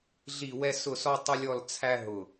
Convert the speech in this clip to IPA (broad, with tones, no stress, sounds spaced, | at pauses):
ɮ i˥˧ w ɛ˥ s ʊ˥˧ s ɔ˥ tˤ ʊ˥ lʲ ɔ˥˧ l t͡sʰ æ˥ ɦ ʊ˧˩